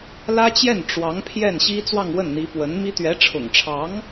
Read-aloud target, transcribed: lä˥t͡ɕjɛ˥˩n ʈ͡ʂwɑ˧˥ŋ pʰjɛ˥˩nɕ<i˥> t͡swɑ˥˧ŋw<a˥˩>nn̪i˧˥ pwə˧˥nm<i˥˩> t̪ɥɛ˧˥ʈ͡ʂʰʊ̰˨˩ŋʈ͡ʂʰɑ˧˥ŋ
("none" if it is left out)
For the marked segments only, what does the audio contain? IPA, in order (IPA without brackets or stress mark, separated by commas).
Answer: i˥, ə˥˩, i˥